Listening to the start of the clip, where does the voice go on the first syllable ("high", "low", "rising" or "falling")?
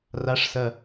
rising